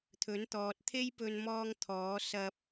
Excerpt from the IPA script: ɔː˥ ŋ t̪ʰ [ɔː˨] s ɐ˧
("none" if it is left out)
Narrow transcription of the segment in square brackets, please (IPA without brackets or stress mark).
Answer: ɔː˨˥